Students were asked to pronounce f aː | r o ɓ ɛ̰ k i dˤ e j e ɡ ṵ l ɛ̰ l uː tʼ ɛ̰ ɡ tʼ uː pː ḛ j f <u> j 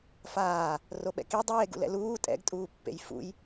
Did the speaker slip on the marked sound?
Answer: yes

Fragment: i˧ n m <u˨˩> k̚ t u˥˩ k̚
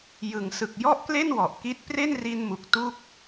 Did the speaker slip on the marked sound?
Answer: no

